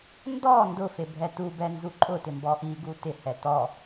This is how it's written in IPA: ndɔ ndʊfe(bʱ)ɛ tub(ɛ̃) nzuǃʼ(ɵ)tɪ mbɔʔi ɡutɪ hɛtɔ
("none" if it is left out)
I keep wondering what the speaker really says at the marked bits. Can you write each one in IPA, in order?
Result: bʱ, ɛ, ʊ

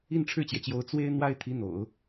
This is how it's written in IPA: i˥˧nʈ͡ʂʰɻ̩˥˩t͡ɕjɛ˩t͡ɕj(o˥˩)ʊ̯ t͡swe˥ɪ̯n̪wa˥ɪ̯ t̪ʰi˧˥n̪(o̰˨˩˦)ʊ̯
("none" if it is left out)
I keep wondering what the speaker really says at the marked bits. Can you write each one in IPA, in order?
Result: o˧˥, o̰˨˩˦

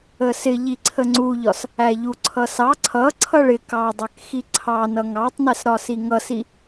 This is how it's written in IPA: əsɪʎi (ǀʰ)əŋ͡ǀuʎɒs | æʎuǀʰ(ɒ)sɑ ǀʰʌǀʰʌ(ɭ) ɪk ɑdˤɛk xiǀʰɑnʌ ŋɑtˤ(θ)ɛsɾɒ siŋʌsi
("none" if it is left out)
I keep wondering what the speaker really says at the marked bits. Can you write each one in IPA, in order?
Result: ǀʰ, ʌ, ɭ, n

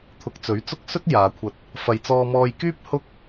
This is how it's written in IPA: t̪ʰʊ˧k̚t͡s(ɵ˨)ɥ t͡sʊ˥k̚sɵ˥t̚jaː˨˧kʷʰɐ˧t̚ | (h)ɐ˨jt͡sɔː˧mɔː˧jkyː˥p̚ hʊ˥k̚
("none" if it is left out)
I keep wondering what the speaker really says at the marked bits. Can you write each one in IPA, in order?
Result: ɵ˨˥, f

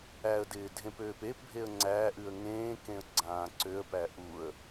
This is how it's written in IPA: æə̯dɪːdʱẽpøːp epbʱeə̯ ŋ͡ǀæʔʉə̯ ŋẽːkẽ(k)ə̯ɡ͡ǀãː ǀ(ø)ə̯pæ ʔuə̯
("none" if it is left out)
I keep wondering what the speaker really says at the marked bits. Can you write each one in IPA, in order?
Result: none, ø

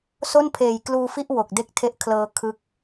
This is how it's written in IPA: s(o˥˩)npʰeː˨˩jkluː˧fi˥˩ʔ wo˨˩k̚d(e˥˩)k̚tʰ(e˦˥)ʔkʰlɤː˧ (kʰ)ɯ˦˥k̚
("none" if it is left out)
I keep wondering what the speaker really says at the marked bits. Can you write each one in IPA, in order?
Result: o˥˩, e˥˩, e˦˥, kʰ

